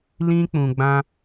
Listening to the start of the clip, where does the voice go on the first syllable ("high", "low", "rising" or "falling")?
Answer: high